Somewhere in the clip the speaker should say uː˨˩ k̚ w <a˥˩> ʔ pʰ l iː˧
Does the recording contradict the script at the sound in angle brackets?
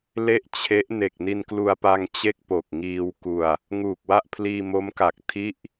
no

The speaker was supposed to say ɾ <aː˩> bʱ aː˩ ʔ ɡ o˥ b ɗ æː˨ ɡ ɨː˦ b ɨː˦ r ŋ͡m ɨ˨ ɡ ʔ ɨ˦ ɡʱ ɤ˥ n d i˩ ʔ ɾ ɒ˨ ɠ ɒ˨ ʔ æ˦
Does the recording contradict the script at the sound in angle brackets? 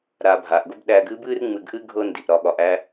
yes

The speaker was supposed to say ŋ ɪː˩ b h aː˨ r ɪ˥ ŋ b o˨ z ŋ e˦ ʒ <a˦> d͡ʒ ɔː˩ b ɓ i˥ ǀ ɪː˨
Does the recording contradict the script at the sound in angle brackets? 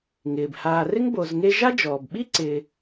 yes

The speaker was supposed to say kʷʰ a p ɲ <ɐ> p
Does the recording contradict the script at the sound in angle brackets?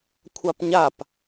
yes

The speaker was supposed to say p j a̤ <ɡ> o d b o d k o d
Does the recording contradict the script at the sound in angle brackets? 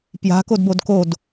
yes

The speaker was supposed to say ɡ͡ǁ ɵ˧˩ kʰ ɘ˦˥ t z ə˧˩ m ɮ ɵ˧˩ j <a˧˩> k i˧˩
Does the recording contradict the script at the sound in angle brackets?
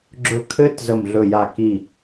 no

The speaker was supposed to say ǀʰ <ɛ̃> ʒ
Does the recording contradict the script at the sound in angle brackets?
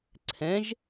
no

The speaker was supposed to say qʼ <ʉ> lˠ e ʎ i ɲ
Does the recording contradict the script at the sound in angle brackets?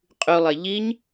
no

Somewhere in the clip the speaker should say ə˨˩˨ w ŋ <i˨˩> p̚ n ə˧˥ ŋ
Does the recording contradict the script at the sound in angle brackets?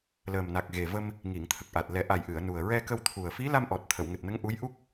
yes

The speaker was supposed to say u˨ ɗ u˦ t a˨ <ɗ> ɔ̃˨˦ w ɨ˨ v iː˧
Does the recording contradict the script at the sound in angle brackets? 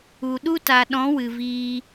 no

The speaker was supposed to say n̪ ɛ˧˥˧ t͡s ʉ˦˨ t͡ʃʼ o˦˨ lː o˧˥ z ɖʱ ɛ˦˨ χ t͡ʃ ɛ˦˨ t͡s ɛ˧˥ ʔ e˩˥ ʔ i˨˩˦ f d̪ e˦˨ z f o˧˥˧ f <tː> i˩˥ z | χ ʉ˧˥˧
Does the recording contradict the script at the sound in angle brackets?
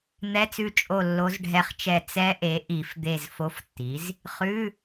no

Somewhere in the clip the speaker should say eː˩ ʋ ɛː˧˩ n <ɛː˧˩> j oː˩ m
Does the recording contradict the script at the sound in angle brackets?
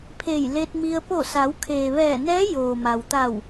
yes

